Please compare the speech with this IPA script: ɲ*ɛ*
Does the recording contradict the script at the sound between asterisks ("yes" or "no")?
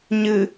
yes